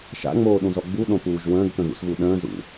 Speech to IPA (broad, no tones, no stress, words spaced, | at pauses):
ʃa̰ŋ͡moːɗũzɔ ɡ͡buɗõpuːʒ wə̃ːɡkə̃ɣṵsɣu ɗə̃ːzṵ